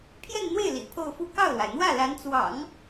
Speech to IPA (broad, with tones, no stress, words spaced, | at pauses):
pʰjɛ˥˧nn̪we˥˩ɪ̯ lḭ˨˩ pʰo˥˧ʊ̯fu˥˧ kɑ˥˩ʊ̯lwa˩ɪ̯n̪wä˥˩ la˧˥nt͡swɑ̰˨˩˦ŋ